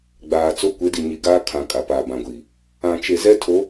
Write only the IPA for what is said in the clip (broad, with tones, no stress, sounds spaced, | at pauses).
ɡ͡b aː˨ t͡s o˦ kʷ e˨˦ d i˨ ɲ i˨ ɡ aː˦ kʰ ã˨ kʼ a˨ p aː˨ b ã˨ ɡʷ iː˨ | ã˨ t͡ʃ e˨ z ɛ˦ tʰ o˨˦